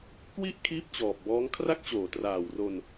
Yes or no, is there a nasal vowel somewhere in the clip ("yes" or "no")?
no